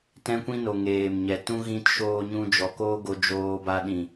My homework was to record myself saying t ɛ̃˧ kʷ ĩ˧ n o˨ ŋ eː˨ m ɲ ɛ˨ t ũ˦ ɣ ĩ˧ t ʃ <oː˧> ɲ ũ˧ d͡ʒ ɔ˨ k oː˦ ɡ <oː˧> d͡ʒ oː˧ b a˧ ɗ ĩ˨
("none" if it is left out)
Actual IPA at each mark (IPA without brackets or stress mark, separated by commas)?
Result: oː˧, o˧